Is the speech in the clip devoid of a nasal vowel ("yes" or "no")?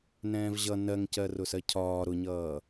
no